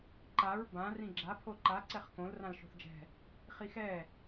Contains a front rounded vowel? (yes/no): no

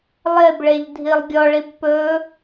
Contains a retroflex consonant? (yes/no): yes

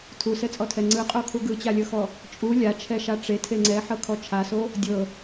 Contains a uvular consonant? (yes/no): yes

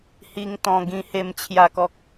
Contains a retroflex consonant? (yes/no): no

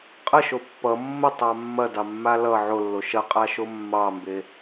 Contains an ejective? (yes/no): yes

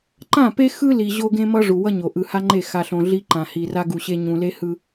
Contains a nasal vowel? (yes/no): yes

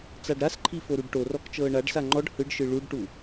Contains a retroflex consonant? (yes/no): yes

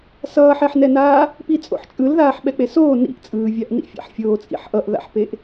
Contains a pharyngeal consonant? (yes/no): yes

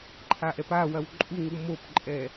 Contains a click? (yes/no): yes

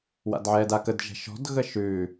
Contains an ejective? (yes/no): no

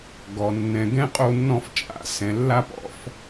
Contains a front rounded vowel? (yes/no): no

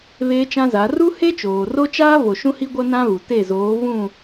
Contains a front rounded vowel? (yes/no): no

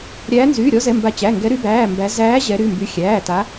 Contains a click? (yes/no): no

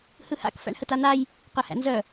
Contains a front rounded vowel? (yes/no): yes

